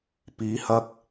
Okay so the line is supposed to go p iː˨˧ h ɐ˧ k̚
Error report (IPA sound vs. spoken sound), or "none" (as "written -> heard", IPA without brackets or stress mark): none